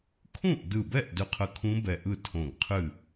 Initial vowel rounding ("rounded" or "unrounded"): rounded